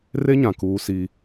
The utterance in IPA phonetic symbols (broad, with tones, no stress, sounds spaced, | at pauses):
r e˦ ɲ ã˨ k uː˦ s i˦